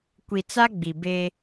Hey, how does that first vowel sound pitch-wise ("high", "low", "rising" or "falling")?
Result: low